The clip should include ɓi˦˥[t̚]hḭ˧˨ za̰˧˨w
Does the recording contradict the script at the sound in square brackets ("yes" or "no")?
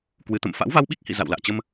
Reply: yes